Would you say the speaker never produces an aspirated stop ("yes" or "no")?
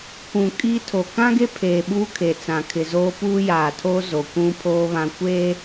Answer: no